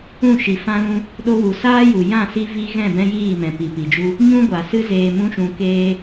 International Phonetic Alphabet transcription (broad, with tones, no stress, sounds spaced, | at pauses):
ũ˦˨ ʃ i˨ f ã˦ l ũ˦ | ɗ o˧ w u˨ s aː˦ j u˨ j ã˦˨ s i˧ v i˦ ɣ ɛ̃˦˨ b ɛ̃˦ j iː˦˨ m ɛ̃˨ p i˨ p i˨ d͡ʒ u˦ | ɲ ũ˦ ɡʷ a˨ s ɨ˦ z eː˧ m ũ˦ ʃ ũ˧ k eː˦